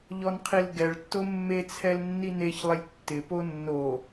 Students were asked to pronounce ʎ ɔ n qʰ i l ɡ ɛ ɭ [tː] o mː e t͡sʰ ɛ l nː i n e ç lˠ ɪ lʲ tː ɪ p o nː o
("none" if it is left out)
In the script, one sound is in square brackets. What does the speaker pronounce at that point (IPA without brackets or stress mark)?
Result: tː